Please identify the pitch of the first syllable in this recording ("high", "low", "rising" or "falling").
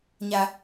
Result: high